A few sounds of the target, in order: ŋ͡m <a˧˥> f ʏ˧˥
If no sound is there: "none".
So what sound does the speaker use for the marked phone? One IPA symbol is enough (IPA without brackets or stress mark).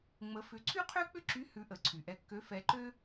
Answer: ə˧˥